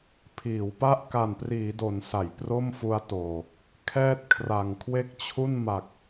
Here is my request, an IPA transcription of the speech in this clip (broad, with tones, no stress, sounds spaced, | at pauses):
pʰ iː˩˦ w p a˥˩ ʔ k a˨˩ n p r iː˩˦ d o˩˦ n s a˩˦ j p r o˥˩ m f u˦˥ a̯ t oː˨˩ | kʰ ɛː˥˩ t̚ kʰ r a˨˩ ŋ kʰ w e˥˩ k̚ t͡ɕʰ u˥˩ n m a˨˩ k̚